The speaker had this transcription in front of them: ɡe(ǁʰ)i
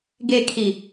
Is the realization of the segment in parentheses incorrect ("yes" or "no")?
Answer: yes